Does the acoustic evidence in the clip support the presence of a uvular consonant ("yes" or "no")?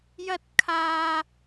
no